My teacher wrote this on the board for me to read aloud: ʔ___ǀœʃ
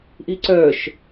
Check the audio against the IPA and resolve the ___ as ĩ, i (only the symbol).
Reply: i